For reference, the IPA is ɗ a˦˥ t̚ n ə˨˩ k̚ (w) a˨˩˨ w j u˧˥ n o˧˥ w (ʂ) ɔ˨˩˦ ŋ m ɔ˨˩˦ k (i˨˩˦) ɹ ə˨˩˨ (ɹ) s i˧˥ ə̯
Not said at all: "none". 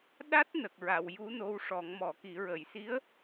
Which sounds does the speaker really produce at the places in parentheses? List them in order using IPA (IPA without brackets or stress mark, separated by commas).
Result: ɹ, ʂ, i˨˩˦, j